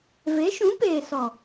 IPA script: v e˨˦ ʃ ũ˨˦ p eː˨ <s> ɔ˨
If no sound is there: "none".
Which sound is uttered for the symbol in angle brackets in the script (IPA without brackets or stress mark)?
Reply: s